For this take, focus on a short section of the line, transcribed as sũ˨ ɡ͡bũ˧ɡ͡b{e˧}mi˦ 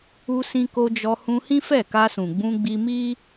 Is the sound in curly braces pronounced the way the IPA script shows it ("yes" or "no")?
no